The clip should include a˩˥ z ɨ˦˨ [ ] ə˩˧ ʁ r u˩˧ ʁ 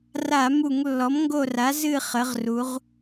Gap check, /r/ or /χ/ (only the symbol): χ